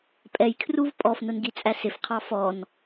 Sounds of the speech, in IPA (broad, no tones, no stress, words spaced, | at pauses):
pʼɛjkʰruv pʼɔfnʊnɡit͡sʼæ sɪfqʰɑ fɔn